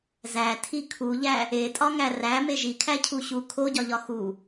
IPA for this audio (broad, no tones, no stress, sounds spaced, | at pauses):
z æ tʰ i kʰ u ʎ æ | e tʼ ɒ ŋ æ r æ m e ʒ i kʰ æ cʰ u ɕ u kʰ o ɟ ɒ ʎ ɒ x u